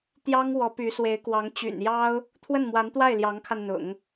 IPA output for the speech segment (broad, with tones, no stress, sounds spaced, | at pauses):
t̪ j ɑ˥ ŋ w ɔ˧˥ p y˧˥ s w e˧˥ ɪ̯ k w ɑ˧˥ ŋ t͡ɕ y̰˨˩ n j ɑ˥ ʊ̯ | t̪ʰ w ə˥˩ n m w a˧˥ n t̪ w a˥˩ ɪ̯ l j ɑ˧˥ ŋ kʰ a˧ n n̪ ʊ̰˨˩˦ ŋ